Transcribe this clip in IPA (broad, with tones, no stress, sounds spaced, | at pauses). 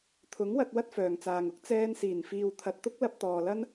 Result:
t̪ʰ ʊ˨˥ ŋ w ɐ˧ t̚ w ɐ˥ t̚ f œː˨ ŋ t͡s aː˨ ŋ ʊ˥ k̚ t͡s ɛː˧ n s iː˨˩ n f iː˨ w t̪ʰ ɐ˨ t̚ t̪ ʊ˥ k̚ l ɐ˧ p̚ t̪ ɔː˨ l ɐ˥ n